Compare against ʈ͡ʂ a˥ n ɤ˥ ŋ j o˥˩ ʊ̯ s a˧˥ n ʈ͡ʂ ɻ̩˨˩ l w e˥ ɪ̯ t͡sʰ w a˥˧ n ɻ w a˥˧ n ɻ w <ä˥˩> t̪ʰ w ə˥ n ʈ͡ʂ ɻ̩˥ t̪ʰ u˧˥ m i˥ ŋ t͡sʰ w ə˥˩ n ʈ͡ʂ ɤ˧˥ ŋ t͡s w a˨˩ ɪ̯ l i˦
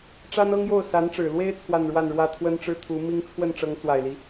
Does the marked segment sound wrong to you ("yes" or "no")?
no